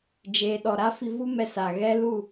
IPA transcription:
d͡ʒeː˨ɗɔ˨ɾa˦ fi˧vu˦mɛ˧sa˨ ɣɛ˦lu˦˨

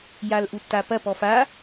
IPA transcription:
jalʔutːapɐ pɔfa

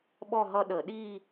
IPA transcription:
ɓɔ˥˧ɦʌ˥˧ɗə˧˩˧ ɗi˥˧

